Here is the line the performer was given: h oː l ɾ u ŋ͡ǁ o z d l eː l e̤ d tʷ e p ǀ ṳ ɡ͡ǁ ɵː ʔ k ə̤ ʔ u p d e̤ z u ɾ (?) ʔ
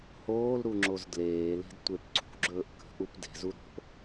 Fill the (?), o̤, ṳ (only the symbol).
o̤